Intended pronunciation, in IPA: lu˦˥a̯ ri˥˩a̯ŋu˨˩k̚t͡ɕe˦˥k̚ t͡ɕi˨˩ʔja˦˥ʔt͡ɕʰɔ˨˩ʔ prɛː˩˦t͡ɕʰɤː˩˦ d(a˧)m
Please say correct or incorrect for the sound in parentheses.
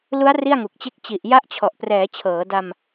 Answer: correct